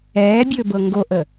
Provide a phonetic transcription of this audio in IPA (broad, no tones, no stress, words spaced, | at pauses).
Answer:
ɛːbʲɵːbɤ ŋɡoʔə